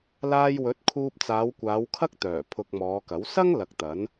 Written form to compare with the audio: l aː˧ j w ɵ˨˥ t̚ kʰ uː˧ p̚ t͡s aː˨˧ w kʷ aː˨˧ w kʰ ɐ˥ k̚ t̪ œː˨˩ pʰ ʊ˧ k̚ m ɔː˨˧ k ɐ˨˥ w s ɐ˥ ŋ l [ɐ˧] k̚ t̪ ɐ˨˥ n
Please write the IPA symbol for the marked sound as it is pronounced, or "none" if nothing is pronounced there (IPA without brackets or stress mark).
ɐ˧